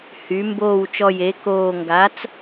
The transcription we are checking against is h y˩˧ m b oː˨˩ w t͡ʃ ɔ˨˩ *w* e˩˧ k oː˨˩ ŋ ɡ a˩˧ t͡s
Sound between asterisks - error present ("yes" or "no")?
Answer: yes